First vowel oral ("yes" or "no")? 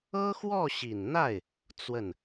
yes